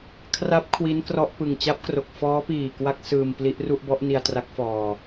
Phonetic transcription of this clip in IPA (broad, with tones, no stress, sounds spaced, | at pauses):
kʰ r a˦˥ p̚ kʰ w i˦˥ n k r ɔ˥˩ ʔ p ɯ˨˩ ŋ t͡ɕ a˦˥ p̚ k r o˨˩ k̚ f ɔː˦˥ p iː˨˩ k w a˦˥ k̚ s ɯː˧ m p l i˦˥ ʔ r u˥˩ ʔ b ɔ˦˥ ʔ n i˧ a̯ t r a˦˥ k̚ f ɔː˧